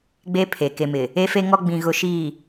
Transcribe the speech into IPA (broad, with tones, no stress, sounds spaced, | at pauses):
ɡ͡b e˦ pʰ e˨ k e˨ m ɪ˨ | e˦ f e˦ ŋ ɔ˦ ɡ͡b ĩ˨ ɣ ʊ˨ ʃ iː˨